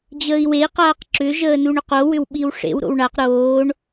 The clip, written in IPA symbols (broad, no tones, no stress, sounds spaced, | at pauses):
d͡ʑ əː i̯ w e i̯ q aː q ǁ ʏ ʒ əː n u ɳ ʏ q o w ʏ w ɓ i w ʂ ḛ w ɾ o̰ w ɳ a q ɾ oː ɳ